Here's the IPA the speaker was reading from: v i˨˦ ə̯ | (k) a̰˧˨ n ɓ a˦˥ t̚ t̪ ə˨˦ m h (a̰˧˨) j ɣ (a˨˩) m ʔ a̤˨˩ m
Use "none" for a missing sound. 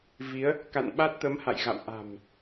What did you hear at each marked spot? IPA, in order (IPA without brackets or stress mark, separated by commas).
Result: k, a̰˧˨, a̰˧˨